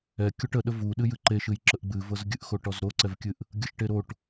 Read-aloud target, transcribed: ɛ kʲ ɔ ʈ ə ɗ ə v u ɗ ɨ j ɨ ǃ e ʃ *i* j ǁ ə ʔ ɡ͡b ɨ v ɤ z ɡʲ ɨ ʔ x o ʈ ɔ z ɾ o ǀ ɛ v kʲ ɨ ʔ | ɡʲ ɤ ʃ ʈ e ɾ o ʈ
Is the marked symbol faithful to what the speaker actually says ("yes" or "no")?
no